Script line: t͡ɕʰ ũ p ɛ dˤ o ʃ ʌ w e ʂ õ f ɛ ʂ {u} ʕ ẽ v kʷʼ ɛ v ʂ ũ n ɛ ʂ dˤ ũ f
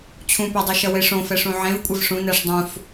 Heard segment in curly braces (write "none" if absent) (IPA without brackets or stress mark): ũ